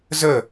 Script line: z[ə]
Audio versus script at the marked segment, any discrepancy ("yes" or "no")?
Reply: no